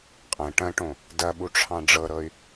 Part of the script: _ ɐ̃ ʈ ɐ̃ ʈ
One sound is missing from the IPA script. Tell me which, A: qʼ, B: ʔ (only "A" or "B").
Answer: A